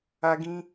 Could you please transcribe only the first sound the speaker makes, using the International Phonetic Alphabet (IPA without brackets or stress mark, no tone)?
a